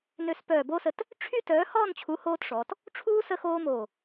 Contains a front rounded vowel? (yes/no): yes